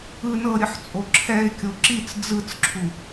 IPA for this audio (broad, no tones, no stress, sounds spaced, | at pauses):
ɯ n ɤ ɾʲ ɯ ħ t͡sʼ o ǁʰ ɛ ɪ̯ kʲ o ǁ i t͡s d͡z ɯ t͡s ǁʰ u